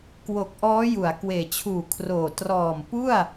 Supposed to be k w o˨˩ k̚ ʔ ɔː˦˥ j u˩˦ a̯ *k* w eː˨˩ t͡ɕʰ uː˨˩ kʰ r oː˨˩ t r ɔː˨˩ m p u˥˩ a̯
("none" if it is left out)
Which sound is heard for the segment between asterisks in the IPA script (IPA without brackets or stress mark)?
k